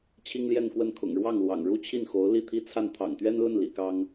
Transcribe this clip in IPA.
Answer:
t͡ɕʰi˥ŋljɛ˥˧nkwə˥˩n kʰʊ̰˨˩ŋɻwɑ˥˩ŋ lwɑ̰˨˩ŋɻu˥t͡ɕʰi˥˩nxo˧˥ʊ̯ li˥˩t̪ʰi˥t͡sʰa˥˩n t̪ʰɑ̰˨˩ŋt̪ɥɛ˥nlə˥˩n lḭ˨˩kɑ˥ŋ

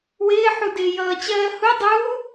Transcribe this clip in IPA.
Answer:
wɪːħudɪː jʌːt͡ɕɜːhu dˤuː

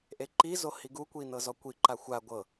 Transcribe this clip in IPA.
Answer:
ʔeǃizo hiɡukʷi nɤzɔkʷiǃa xʷa ɡʷɤ

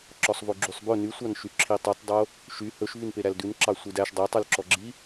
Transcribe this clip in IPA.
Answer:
ǁɔsˤvoɡ͡ǁysˤbɵ nysʷɑnʃy ǁʰitˤytˤdˤo | ʃy hɵʃ vynpeɾældʉn ǁɑsʷidæʃ dˤetˤylǁɔɡ͡ǁi

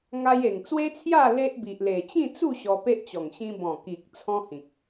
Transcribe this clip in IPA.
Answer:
ŋa˧je˨˩ŋt͡swe˦t͡sʰja˥˧ le˦ʔbi˨ʔle˨˩ t͡ɕĩ˥˧t͡su˥˧ ɕɔ˧pe˦ʔt͡ɕɔ˨˩ŋ ɕĩ˧bɔ̃˨˩ ki˨k̚ t͡sʰɔ̃˦hĩ˨k̚

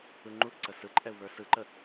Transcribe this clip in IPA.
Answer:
ɯŋ͡ǃuθǀə sɯǃʼɛu̯ βə˞sɯǃə

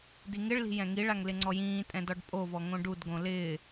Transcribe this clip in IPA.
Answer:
diŋɪɭli̤ jɛ̃ŋiɭaŋ lɪŋ͡ǀɔjĩːtʼɛ̃ dɔɖpʼovɔ ŋõɖudɡõ lɪː

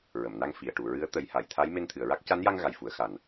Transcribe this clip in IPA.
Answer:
ɹə˨˩˨mna˧ŋ fi˨˩˨ə̯ʈu˨˩˨ ɹɨ˧˥ə̯t̪ə˨˩˦jha˨˩˨jt̪ʰa˧˥j me˧nt̪ʰɨ˨˩˨ə̯ɹa˦˥k̚ ca˧˥nja˧ŋ ɣa˨˩jfu˨˩˦ə̯xa˨˩n

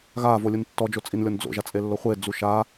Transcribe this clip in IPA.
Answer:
ɣaːvolʲun tːɔd͡ʒot͡sʼinlʲɔn d͡zo̰ʒat͡sʼelːo χʷed͡zu ʃa

